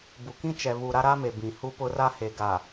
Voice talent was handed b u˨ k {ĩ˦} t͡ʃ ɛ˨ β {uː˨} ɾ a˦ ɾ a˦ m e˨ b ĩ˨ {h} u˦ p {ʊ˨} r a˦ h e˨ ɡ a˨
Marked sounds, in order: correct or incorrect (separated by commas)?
correct, incorrect, correct, incorrect